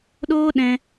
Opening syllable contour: high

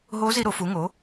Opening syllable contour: rising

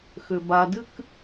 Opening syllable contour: low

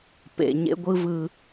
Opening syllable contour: low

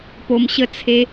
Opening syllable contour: low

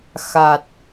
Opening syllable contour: low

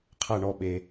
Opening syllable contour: falling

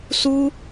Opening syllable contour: high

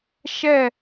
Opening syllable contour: falling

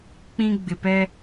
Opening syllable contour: high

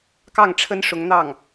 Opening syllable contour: falling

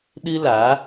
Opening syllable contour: high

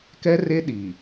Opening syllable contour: high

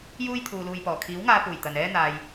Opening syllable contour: high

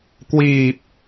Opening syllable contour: low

